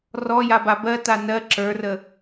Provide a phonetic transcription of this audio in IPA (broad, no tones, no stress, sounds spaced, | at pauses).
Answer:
r ɔ j a b a b ɜ t a n ɜ ǁ ə˞ r ə